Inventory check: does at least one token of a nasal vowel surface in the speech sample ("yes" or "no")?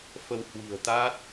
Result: no